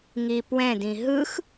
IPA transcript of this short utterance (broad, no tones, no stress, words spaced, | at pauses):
ŋipwɛ̃dĩ ɦɯx